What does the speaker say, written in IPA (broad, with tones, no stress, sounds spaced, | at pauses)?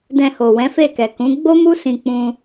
d ɛ̃˧ h o˨ w ɛ̃˨˦ f e˦˨ k ɛ˨ k ũ˨˦ ɡ͡b o˦ m u˦ s ĩ˧ k͡p ũ˧